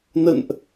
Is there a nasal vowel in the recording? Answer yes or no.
no